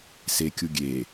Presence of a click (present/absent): absent